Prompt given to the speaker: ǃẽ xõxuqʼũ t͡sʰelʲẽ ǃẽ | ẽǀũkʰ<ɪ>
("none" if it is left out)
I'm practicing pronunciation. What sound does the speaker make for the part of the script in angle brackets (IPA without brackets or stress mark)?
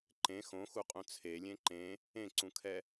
ɛ